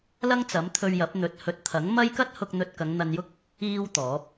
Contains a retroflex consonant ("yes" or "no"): no